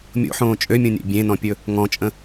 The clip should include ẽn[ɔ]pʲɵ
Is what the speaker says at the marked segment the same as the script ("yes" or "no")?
no